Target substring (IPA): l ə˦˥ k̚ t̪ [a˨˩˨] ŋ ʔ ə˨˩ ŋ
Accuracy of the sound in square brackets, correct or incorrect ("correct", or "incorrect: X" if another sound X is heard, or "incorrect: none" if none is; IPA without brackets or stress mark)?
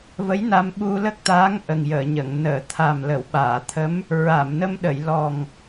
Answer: incorrect: a˧˥